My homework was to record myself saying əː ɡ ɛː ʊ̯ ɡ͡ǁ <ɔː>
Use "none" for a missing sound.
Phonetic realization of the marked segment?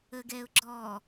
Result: ɔː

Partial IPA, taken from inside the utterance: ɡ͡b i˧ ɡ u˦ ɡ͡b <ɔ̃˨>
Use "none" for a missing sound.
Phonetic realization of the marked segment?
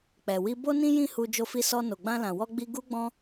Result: ɔ̃˦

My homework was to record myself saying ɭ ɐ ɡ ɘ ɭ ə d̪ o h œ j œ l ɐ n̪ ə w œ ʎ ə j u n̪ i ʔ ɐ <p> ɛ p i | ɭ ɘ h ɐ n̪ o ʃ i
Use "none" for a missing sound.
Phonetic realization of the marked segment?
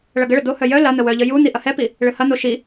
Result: h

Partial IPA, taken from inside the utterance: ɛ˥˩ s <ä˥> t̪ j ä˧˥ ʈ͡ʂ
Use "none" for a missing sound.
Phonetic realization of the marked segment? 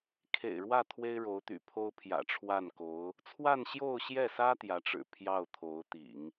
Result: ä˥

